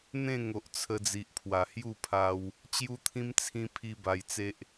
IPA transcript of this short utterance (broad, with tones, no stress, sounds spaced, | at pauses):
n̪ ẽ˥˧ ŋ o˨ ʔ t͡sʰ ə˧ d͡z i˨ ʔ pʰ w a˨˩ h j u˥˧ pʰ a˧ w | t͡ɕ j u˦ t̪ʰ ĩ˦ m t͡sʰ ĩ˦ pʰ i˦ b a˧ j t͡s e˦ ʔ